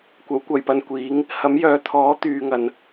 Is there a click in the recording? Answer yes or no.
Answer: no